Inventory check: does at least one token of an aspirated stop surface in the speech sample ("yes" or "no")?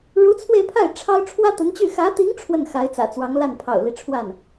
yes